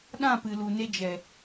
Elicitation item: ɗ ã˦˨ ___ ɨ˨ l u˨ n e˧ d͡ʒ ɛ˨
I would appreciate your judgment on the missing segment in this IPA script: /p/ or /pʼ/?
p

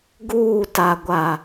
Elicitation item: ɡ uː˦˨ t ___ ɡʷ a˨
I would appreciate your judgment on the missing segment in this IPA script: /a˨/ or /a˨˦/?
a˨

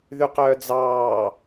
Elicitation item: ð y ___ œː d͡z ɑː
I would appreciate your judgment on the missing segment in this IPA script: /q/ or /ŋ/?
q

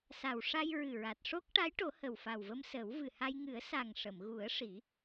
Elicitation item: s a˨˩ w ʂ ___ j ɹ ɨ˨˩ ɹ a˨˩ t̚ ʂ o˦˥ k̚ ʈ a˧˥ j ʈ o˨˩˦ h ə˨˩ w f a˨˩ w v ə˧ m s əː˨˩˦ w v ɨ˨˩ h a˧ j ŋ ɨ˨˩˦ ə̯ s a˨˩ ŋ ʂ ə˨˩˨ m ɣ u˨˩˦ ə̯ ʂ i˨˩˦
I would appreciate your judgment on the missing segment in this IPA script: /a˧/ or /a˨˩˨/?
a˧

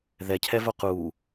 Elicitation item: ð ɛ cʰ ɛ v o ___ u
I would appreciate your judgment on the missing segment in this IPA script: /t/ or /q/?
q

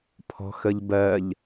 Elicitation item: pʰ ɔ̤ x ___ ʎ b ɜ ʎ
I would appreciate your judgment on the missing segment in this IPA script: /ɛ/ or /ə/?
ə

